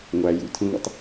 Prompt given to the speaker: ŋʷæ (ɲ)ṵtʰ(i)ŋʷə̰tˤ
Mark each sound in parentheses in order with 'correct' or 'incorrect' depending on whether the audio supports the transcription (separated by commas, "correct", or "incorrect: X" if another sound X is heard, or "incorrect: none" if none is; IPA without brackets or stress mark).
incorrect: j, incorrect: ĩ